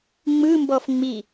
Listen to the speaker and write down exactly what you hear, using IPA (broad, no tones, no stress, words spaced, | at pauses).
ŋ͡mɯ mbɔfŋ͡mi